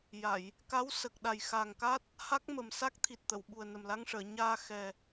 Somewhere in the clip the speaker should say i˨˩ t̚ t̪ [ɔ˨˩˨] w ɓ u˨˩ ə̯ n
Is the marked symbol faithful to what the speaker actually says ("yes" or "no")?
no